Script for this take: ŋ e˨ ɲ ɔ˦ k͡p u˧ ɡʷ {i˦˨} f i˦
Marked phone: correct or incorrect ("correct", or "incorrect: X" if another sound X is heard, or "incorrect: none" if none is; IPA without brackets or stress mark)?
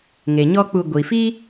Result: incorrect: i˨